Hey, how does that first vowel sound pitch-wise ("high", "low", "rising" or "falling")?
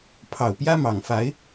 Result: low